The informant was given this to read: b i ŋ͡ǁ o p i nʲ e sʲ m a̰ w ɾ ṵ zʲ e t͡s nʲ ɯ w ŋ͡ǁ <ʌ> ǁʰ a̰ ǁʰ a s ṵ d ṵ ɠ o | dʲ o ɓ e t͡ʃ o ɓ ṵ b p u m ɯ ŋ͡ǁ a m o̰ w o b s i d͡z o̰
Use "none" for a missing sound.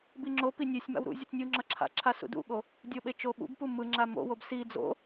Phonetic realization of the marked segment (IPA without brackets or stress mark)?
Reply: ʌ